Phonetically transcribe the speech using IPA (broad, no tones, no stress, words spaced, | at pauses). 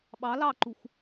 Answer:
ɓɑ lɑǃux